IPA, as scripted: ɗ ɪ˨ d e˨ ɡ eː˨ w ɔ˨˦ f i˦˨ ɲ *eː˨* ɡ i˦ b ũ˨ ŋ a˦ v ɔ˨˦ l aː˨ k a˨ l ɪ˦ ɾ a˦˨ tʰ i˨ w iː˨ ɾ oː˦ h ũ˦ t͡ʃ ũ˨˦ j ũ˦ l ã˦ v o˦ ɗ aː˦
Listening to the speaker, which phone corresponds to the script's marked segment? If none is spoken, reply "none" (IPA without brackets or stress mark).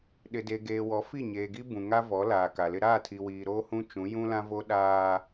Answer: eː˨